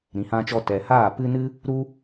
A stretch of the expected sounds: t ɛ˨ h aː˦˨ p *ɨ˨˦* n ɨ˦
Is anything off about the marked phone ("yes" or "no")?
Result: yes